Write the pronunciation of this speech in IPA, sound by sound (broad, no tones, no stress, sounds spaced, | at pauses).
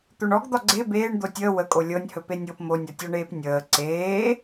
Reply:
t̪ o ɳ ɔ ɡ d̪ ɒ ɡ͡ǀ e b eː ɳ d̪ o tʲ əː w ə kʼ o lʲ ɤ nʲ h ɵ p e nʲ ɤ p m o nʲ ɒ tʲ ɒ ɳ eː p nʲ əː ǀ eː